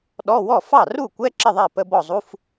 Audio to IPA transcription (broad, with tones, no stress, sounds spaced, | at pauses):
ɗ ɔ˧˥˧ w ɔ˥˩ f ɑ˥˩ r u˥˩ kʷ ɛ˧˥˧ ǁ ɪ˥˩ ðˤ ɛ˥˩ p ə˧˥˧ b ɔ˥˩ zˤ u˧˥˧ f